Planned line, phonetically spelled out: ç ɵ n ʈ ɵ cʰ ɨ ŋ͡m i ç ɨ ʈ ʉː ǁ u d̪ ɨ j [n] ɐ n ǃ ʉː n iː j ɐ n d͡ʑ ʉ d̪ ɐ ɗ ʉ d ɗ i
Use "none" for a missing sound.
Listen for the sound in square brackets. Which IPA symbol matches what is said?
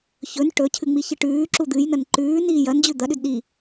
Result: n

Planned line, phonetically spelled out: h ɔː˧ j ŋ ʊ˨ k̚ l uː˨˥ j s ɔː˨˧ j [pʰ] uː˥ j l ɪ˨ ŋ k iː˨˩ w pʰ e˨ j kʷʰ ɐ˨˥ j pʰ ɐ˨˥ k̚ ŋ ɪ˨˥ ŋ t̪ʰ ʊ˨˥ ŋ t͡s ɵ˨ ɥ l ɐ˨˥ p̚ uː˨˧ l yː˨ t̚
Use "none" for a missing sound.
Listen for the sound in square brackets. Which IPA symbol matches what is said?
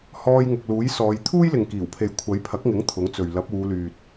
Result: t̪ʰ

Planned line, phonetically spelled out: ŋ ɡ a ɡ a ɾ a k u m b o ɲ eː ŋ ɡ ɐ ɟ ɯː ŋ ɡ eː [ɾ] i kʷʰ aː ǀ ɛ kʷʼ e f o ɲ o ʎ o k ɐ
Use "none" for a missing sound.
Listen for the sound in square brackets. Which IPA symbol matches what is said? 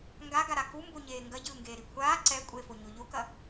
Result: ɾ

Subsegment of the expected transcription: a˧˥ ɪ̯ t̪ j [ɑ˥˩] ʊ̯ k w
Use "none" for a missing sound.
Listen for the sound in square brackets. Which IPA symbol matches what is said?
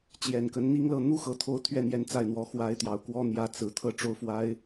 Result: ɑ˨˩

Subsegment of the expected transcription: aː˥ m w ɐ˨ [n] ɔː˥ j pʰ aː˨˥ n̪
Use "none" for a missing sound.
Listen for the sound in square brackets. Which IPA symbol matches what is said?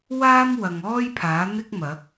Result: ŋ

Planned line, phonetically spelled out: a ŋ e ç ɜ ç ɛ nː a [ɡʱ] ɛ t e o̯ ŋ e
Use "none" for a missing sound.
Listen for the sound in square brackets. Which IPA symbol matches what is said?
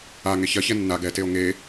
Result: ɡ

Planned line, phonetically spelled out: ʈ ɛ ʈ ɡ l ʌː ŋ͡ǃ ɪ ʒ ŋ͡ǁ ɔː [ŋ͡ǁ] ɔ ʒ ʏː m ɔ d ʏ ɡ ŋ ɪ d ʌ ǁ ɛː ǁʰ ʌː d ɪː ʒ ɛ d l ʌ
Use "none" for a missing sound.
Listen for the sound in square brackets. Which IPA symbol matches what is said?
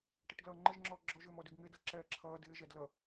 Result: ɡ͡ǁ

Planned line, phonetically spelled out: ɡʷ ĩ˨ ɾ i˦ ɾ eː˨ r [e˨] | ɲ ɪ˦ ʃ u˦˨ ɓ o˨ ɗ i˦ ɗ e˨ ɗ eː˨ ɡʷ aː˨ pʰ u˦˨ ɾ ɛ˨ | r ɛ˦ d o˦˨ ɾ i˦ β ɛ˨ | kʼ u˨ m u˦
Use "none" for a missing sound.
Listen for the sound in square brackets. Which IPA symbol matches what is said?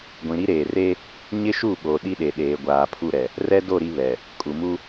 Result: e˦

